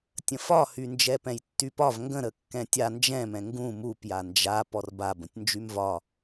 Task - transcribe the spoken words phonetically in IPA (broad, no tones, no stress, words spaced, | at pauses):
tʲə̃fɒhy nd͡ʒɛpɛ̃jtːypɒv ŋɡə̃ɾə kːɛ̃tʲa nd͡ʒɛ̃mɛ̃ ŋɡũ mupja nd͡ʒa pɔrba bə̃tʲnd͡ʒymvɒ